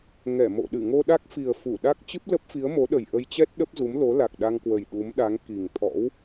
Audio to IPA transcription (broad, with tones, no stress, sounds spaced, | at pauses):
ŋ ɛ˧˩ m o̰˧˨ ɗ ɨ˧˩ ŋ o˧ ɗ a˦˥ k̚ f i˨˩ ə̯ f u˧˩ ɗ a˦˥ k̚ t͡ɕ ɨ˦˥ p̚ l ə˦˥ p̚ f i˨˦ ə̯ m o˨˦ ɗ ə˨˩ j ʔ ə˧ j t͡ɕ ɛ˦˥ t̚ ɗ ə˦˥ p̚ z u˨˦ m l o˨˦ l a˨˩ k̚ ɗ a˧ ŋ k w ə˨˩ j ɗ u˨˦ m ɗ a˨˦ ŋ k i˨˩ ŋ t̪ʰ ɔ̰˧˥ w